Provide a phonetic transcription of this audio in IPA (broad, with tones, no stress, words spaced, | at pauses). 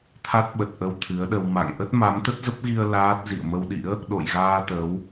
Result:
t̪ʰa˦˥t̚ɓə˨˩t̚ ʔə˧wt̪ʰɨ˨˦ə̯ɗə˧w ma̰˧˨ŋʔə˦˥t̚ ma˨˦mt̪ə˦˥t̚zə˦˥p̚ɣi˧ə̯ laː˦˥t̚ zḭ˧˨ə̯mə˧wɗḭ˧˥ə̯ | ɗo̰˧˨jɣaː˧ t̪ə˨˦w